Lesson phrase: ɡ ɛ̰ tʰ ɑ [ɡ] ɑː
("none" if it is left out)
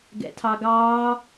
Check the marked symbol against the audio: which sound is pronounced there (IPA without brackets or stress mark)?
ɡ